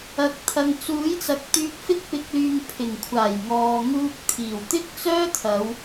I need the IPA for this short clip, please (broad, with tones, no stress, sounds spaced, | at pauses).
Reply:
ɐ˨ k̚ t̪ʰ ɐ˨ ŋ t͡s uː˨˥ j t͡s ɐ˨˥ k̚ t̪ yː˧ k̚ f ɪ˥ k̚ p ɪ˧ k̚ l yː˧ ŋ pʰ ɪ˨˩ ŋ kʷʰ aː˨˩ j ŋ ɔː˨ ŋ uː˧ k̚ t̪ʰ iː˨˩ w t̪ ɪ˥ k̚ t͡s œː˥ t̪ʰ ɐ˨˧ w